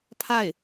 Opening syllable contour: falling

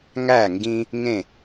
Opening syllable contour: falling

